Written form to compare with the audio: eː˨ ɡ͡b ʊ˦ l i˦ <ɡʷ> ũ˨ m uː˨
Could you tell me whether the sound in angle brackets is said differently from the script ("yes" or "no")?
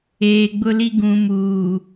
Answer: yes